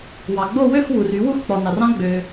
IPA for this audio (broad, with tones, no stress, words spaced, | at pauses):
wɑ˩ɡ͡bo˥˨ wø˥˨xwu˩r y˨˩˦wu˥˨xk͡pɔ˩ nɑ˩rɑ̃˦˥ ɡ͡bø˩